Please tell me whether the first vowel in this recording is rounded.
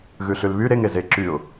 yes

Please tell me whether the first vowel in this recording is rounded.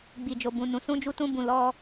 no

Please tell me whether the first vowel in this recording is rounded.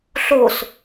yes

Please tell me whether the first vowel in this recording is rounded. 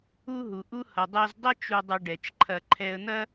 yes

